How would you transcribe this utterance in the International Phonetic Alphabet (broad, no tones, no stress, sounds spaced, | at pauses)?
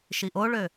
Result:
ʃ i ʔ o ɭ ø